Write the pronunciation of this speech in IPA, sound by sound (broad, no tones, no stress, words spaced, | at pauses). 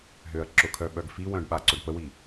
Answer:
ɦøɐ̯ǁʊkʰœ ɓœɡfiwœ̃ɖ ɓaǀʊɖpəwi